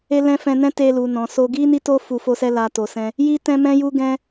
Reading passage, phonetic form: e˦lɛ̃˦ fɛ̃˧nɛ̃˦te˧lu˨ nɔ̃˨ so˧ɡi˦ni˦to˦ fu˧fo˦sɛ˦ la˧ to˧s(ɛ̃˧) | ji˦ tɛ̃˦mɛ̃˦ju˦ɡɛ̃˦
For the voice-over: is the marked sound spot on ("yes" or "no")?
no